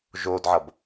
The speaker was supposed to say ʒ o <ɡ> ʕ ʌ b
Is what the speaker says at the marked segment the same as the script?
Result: no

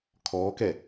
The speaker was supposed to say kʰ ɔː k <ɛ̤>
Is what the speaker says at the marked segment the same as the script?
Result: no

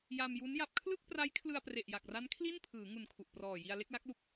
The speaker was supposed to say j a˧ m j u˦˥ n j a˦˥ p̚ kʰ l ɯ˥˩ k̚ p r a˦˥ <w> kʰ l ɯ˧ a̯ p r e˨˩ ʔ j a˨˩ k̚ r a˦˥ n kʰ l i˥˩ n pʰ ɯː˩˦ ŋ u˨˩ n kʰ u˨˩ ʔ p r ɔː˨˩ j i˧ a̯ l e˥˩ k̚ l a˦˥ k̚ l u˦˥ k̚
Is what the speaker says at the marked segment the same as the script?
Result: no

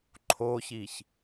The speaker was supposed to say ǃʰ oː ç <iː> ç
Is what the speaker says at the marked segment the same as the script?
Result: yes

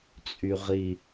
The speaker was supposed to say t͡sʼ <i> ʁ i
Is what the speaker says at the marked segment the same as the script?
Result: no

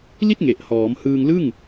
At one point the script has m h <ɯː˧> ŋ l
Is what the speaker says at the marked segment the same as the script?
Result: yes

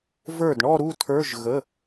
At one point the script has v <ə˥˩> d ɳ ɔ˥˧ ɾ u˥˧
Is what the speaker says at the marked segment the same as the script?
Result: no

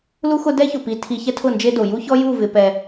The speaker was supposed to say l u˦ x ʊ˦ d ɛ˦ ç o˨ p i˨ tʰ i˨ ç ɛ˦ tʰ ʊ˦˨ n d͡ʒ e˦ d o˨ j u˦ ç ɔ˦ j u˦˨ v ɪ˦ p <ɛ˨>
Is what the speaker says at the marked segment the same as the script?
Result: no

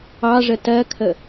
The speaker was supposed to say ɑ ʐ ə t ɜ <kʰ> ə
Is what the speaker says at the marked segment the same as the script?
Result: yes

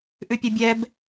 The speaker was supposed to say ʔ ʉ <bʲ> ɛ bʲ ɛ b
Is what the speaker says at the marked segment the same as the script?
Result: no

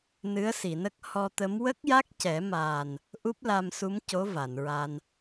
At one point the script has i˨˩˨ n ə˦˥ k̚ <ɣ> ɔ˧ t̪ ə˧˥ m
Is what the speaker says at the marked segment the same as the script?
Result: no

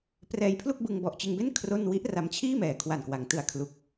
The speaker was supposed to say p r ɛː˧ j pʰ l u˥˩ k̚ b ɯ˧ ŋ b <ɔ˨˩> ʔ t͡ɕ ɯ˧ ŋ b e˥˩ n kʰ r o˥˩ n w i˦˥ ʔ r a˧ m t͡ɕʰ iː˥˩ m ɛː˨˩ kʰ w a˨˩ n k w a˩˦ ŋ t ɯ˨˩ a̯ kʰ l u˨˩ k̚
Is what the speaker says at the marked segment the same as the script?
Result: yes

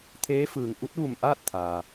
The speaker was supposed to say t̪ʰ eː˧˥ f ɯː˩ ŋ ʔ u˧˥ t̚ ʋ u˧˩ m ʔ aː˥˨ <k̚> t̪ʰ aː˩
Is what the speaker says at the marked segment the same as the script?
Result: no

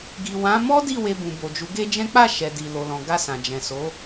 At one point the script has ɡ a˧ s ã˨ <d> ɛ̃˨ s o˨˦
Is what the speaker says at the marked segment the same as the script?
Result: no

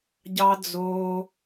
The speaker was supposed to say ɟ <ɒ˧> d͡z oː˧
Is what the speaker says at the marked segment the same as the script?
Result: no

